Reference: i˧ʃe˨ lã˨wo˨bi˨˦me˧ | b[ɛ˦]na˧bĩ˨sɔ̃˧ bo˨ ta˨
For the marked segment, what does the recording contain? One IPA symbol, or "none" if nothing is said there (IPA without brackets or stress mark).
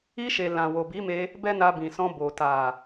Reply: ɛ˦